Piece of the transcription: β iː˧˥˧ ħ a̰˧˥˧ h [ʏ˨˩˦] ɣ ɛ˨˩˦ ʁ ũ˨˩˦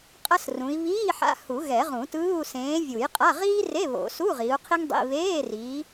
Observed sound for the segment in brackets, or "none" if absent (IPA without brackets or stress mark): u˨˩˦